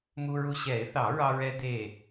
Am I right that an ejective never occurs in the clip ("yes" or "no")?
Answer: yes